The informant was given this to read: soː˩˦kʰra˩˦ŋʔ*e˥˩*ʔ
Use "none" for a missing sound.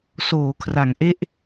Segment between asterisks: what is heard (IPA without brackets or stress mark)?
e˥˩